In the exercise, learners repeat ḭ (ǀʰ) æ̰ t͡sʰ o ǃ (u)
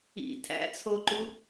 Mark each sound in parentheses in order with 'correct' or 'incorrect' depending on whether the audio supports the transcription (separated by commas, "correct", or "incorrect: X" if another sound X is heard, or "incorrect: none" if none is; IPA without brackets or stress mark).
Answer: incorrect: tʰ, correct